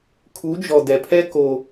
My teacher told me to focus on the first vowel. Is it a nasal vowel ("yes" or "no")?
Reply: no